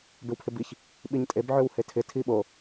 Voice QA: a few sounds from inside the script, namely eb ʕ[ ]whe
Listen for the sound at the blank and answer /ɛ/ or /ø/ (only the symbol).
ø